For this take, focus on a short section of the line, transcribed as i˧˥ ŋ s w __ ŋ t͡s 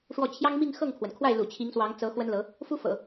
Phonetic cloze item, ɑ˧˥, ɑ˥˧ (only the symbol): ɑ˧˥